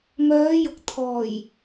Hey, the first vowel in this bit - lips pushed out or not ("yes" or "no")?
yes